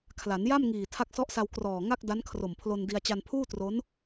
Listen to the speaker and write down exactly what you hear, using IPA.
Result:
kʰ l a˩˦ n j a˥˩ m ŋ iː˨˩ tʰ a˦˥ k̚ s ɔ˦˥ ʔ s a˧ w k r ɔː˨˩ ŋ a˥˩ k̚ d a˦˥ n kʰ r o˨˩ m pʰ l o˧ n d i˧ a̯ t͡ɕ a˧ n pʰ uː˥˩ t r o˦˥ n

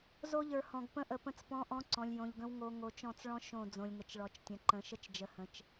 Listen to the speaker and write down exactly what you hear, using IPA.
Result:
z o˦ ʎ ə˞˨ h ɔ̃˨ ɡ p ə̃˦ ʔ ə˨ p ə̃˦ t͡s p ɔ̃˦ ʔ ɔ̃˦ ǀ ɔ̃˨ lʲ j õ˨ ʎ ɡ ə̃˦ w ŋ o˦ ŋ o˨ t͡ʃ ɔ̃˦˨ t͡s ɭ ɔ̃˦ ʃ õ˦˨ d͡z õ˨ lʲ ŋ ə˨ t͡ʃ ɭ ɔ˨ t͡ʃ tʲ ə̃˨ ǃ ə̃˨˦ ʃ ə˦ t͡ʃ d͡ʒ ə˨ h ə̃˨ t͡ʃ

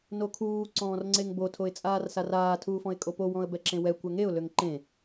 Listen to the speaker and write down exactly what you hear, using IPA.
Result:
n o kʰ uː ǀ ɔ̃ː r ŋ͡ǀ e ŋ b o tʰ o ɪ̯ t͡sʼ aː r s a r aː tʰ uː f ɔ̃ ɪ̯ kʼ o p o w ɔ̃ ə̯ b ɛ ǁ ẽ w ɛ kʷ ɛ ŋ e ʊ̯ l ø ŋ ǃ ẽ

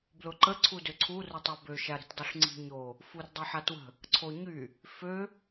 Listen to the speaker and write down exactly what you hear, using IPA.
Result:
b l ʊ ǃ ə ǀʰ u d ø ǀʰ u r ʊ tˤ a b ø ʃ a ɾ i̤ t dˤ u ɬ ŋ͡ǀ i̤ ɲ o | f u r dˤ œ ħ a t w ə̤ | ǀʰ o ɲ y | f ø

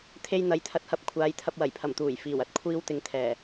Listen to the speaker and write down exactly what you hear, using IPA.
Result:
t̪ʰ e˧ j n̪ ɐ˨˥ j t̪ʰ ɐ˨˥ t̚ h ɐ˨˥ p̚ kʷʰ aː˨˧ j t̪ʰ ɐ˧ p̚ w ɐ˨˩ j pʰ ɐ˨˩ m t̪ uː˨˩ j f iː˨˩ w ɐ˧ t̚ kʷʰ iː˥ w t̪ ɪ˧ ŋ t̪ʰ ɛː˨˩

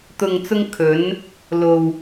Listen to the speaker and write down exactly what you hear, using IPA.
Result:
t̪ ʊ˨ ŋ t͡s ʊ˧ ŋ kʰ ɵ˨˧ n | l o˨ w

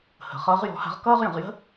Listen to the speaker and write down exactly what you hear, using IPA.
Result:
h ə̤˩˧ χ ʌː˧˥ ʁ j ɔ̤˧˥ h a̤˧˥ ʁ k ʌː˥ ʁ j ə̃˩˧ ʁ j ə̤˥

